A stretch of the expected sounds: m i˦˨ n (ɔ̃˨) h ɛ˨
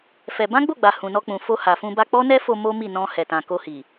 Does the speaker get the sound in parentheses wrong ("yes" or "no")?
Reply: yes